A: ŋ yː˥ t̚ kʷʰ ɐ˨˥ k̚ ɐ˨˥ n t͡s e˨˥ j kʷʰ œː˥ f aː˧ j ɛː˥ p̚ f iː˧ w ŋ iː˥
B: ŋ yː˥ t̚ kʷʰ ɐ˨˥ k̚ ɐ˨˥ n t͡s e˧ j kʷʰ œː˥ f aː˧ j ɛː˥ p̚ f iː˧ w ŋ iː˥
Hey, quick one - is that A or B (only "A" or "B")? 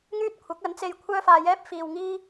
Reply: B